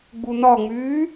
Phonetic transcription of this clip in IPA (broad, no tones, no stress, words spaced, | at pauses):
ɡ͡bunɒŋ͡myː